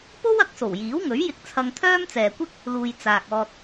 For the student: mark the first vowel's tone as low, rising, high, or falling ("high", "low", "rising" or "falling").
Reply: high